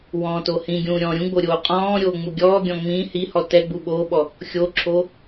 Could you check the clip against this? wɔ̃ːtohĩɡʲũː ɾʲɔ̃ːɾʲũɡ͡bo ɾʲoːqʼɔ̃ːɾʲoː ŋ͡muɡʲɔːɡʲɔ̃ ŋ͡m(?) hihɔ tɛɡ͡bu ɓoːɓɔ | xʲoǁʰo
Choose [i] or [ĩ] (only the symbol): ĩ